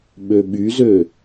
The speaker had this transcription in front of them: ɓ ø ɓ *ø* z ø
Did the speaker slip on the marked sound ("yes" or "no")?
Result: yes